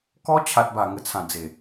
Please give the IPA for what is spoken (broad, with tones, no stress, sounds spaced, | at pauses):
k ɔ˦ t͡ɕʰ a˨ t̚ b a˨˩ ŋ ə˨˩ t͡sʰ ã˨˩ d͡z e˨˩